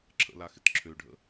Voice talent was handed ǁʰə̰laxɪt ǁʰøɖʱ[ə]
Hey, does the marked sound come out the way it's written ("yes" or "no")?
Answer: no